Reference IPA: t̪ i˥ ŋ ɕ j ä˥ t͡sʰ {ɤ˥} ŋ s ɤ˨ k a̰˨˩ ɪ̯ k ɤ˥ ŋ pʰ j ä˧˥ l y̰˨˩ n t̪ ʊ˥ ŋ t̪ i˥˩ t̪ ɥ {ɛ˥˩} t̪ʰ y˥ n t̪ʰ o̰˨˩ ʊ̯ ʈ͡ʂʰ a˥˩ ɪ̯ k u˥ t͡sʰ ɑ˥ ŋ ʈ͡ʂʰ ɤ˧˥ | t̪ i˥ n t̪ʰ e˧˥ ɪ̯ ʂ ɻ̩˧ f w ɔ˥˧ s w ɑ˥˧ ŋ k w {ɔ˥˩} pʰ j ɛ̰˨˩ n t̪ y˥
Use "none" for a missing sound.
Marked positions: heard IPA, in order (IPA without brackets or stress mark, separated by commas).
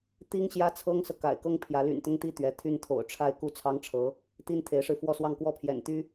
ɤ˥, ɛ˧˥, ɔ˥˩